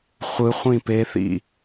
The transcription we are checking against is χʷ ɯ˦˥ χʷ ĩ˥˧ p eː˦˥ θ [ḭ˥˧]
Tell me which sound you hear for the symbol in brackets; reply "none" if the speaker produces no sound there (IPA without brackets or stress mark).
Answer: ḭ˥˧